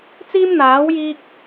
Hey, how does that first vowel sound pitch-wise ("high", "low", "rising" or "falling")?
high